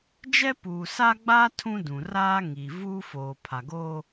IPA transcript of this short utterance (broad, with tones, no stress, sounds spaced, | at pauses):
d͡ʒ ɛ˦ p uː˨ s a˦ ɡ͡b aː˦ tʰ ũ˦ d ũ˨ r aː˦ ŋ i˨ v uː˦ f oː˨ pʰ a˨ ɡ oː˦